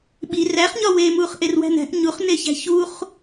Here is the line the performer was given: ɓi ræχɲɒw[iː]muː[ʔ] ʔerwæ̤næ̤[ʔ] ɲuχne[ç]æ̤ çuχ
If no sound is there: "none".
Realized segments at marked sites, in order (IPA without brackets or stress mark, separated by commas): eː, χ, ʔ, ç